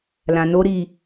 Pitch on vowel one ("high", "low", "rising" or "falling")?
low